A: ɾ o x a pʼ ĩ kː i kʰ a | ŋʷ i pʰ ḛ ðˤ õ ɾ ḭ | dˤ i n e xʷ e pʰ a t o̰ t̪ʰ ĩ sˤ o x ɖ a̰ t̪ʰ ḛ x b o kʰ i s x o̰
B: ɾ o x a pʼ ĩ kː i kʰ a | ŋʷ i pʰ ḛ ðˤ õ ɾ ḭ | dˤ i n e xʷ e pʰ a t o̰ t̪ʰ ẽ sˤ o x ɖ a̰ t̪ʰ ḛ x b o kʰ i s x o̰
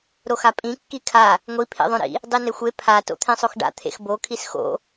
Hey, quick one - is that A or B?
B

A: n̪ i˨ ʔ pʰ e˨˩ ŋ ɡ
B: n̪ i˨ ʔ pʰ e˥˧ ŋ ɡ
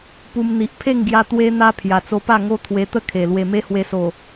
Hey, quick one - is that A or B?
B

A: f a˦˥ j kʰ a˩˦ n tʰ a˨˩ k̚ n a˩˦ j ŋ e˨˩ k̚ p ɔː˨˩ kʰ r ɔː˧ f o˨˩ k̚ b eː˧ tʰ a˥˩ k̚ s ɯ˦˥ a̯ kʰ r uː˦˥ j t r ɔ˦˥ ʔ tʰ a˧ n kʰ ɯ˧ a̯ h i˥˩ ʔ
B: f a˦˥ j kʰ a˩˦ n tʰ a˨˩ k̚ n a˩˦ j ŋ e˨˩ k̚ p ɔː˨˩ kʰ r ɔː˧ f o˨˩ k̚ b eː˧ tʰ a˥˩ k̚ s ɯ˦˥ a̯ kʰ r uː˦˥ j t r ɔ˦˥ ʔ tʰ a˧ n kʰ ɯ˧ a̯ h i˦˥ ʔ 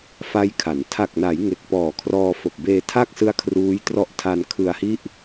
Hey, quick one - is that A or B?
A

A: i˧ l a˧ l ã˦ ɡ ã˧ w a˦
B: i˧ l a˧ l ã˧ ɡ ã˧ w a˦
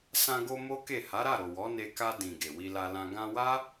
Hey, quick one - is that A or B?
B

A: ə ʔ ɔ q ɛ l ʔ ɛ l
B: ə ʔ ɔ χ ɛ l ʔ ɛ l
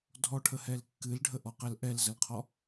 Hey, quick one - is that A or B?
A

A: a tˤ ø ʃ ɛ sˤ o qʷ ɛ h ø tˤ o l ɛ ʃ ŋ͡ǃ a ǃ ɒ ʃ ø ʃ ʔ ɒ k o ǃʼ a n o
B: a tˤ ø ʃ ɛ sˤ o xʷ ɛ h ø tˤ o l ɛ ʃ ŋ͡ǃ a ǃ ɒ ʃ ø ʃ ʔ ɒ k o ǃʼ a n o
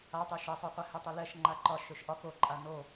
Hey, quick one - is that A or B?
A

